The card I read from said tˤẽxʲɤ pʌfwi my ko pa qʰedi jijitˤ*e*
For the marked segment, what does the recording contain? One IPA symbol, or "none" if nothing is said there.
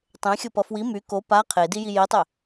e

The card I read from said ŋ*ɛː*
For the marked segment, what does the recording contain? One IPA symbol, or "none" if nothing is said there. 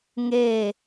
eː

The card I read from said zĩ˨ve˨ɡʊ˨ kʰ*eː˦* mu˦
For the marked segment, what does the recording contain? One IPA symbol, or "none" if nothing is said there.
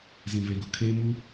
eː˦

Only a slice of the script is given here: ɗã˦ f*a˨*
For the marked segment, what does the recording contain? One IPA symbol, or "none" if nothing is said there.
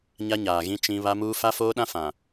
ã˨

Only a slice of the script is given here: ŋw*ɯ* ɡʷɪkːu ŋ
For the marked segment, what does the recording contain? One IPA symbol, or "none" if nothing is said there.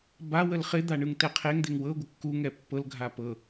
ɤ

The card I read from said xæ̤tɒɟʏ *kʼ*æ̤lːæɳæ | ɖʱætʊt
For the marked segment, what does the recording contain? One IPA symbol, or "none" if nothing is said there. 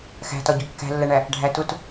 kː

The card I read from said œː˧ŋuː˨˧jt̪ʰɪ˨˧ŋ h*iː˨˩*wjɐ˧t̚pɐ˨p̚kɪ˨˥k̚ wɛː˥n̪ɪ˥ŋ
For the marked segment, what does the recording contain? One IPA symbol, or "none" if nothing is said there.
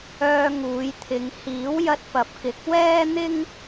iː˨˥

